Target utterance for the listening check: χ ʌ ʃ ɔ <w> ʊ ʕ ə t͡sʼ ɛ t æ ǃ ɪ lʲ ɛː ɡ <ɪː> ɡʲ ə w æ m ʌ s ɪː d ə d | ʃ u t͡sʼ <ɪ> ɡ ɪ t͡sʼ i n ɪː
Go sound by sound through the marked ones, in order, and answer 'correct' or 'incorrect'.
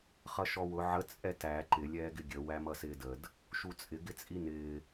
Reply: correct, incorrect, correct

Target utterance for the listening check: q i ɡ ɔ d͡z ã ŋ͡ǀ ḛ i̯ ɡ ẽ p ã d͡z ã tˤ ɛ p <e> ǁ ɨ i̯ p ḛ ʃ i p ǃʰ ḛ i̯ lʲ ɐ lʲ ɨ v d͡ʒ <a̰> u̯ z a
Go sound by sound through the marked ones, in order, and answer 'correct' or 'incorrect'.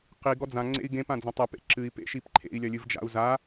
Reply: incorrect, correct

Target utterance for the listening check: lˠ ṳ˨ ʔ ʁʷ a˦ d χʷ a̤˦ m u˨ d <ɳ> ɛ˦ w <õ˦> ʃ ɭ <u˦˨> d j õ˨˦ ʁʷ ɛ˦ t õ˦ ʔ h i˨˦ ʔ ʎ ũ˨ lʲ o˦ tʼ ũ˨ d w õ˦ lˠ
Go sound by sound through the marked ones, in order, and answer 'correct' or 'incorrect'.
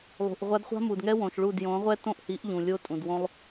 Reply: incorrect, incorrect, correct

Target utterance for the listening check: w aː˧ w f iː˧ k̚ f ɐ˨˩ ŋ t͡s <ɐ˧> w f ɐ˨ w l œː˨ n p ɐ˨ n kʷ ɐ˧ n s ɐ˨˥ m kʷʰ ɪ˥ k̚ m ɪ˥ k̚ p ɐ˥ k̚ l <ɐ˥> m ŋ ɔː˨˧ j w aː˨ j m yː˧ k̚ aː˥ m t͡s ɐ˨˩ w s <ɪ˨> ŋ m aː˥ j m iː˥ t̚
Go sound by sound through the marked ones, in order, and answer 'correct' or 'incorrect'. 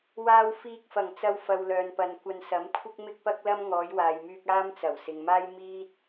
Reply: correct, correct, correct

